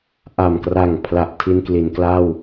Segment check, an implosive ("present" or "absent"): absent